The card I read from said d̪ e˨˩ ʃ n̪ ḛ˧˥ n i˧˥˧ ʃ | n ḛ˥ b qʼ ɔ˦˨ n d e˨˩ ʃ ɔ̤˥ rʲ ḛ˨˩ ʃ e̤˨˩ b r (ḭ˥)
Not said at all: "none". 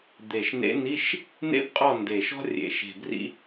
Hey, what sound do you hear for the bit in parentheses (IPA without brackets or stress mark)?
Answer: ḭ˥